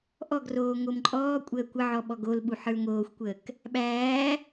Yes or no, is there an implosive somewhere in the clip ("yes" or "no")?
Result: yes